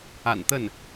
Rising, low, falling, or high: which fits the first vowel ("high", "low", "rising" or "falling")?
low